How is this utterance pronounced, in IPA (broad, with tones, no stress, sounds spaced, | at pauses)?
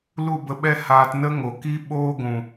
l u˦˨ b ə˧ ɓ ɛ˦ h aː˧ t n ə˦ ŋ o˨ k i˦ ɓ oː˦ ɡʷ ũ˨